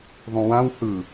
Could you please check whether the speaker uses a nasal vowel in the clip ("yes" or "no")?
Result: yes